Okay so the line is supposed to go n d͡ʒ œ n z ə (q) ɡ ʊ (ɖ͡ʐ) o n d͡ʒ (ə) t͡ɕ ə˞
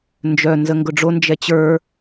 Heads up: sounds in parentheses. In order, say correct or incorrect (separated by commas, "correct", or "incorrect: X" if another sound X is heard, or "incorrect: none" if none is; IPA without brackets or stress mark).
incorrect: ŋ, correct, incorrect: ɛ